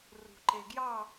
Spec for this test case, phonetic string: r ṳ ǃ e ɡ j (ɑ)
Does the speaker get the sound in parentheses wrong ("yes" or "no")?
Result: no